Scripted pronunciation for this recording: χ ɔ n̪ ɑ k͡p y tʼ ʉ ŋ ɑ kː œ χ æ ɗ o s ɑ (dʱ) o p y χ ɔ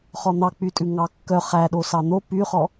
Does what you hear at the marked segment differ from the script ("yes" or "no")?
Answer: yes